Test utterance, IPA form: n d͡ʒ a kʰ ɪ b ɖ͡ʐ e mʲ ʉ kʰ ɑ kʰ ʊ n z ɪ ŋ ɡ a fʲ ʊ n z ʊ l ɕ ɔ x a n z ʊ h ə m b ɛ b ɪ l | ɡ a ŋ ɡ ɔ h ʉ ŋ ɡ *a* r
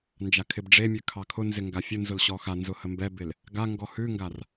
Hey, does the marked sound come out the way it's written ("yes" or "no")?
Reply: yes